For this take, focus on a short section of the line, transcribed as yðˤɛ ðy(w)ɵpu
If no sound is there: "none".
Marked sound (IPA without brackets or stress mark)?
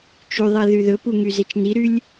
ð